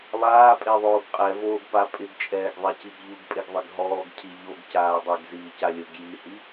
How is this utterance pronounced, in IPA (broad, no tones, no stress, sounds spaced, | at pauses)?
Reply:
lˠ aː pʼ e ðˤ oː ɡ qʼ ɛ v oː ɡ p a pʼ ɪ ɡ t͡ʃʼ ɛː ɡ ðˤ ɛ c i ɡ ʎ u ɡ pʼ e ɡ ðˤ ɪ ɡ ɦ ɔː ɡ cʰ i ʎ o ɡ c aː dˤ e ɡ z iː c a lʲ ʊ ɡ j i h i